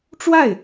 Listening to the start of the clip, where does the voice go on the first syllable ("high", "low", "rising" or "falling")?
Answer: falling